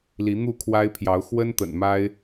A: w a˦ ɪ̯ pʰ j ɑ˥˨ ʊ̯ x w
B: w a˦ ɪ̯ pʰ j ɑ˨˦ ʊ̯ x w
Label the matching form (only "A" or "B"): B